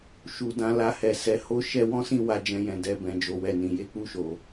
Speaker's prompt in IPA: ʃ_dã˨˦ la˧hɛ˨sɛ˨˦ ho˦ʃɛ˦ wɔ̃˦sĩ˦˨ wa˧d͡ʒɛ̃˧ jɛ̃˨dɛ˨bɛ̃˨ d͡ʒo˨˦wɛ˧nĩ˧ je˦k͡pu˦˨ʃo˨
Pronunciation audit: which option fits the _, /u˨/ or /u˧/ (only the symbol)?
u˨